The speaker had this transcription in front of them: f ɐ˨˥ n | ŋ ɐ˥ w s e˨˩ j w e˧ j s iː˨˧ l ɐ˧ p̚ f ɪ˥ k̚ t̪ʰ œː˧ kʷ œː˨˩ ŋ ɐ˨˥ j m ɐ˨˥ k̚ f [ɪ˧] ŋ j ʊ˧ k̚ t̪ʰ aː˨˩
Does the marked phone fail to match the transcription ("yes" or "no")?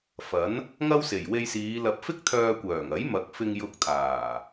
no